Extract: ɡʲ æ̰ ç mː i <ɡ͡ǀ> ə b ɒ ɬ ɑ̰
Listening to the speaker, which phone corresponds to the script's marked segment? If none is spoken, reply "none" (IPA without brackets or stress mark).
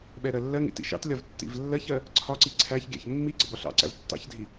ɡ͡ǀ